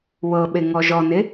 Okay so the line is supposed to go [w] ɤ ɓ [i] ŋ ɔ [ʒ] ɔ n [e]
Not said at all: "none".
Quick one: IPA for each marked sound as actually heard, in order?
w, e, ʒ, e

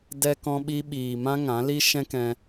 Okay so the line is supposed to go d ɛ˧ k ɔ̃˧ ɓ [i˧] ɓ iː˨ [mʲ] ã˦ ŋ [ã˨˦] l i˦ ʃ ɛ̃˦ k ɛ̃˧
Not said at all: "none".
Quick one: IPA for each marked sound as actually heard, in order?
i˧, m, ã˨˦

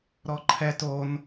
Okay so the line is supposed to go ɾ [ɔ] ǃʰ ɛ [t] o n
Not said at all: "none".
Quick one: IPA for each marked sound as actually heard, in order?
ɔ, t

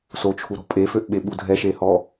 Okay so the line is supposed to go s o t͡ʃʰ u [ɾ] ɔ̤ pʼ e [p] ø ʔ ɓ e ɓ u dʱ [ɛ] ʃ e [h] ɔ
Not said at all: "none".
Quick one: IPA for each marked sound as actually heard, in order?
ɾ, f, ɛ, h

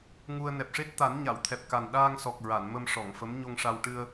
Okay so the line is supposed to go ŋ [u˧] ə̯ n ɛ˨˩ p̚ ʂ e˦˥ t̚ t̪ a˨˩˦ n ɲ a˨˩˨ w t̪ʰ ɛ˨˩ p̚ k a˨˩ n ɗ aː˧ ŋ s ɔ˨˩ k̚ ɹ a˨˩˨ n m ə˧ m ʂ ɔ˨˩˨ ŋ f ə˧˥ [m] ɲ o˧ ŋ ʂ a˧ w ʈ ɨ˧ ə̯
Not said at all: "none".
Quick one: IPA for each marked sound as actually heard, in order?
u˧, m

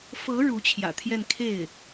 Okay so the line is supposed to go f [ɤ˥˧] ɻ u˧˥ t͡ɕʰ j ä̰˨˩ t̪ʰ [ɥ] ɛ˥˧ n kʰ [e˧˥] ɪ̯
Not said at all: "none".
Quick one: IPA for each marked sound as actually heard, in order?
ɤ˧˥, j, e˥˩

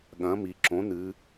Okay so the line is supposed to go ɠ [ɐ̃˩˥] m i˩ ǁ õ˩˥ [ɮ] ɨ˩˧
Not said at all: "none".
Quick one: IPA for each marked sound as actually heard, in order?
ɐ̃˩˥, n

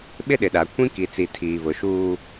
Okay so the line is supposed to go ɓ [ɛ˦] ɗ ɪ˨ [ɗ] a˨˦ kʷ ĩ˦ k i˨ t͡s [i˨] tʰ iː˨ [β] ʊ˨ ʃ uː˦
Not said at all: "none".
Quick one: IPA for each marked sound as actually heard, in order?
ɪ˦, ɗ, i˨, β

